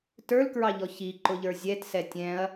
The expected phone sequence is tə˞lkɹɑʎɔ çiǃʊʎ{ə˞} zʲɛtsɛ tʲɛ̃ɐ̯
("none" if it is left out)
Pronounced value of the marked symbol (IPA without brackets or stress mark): ə˞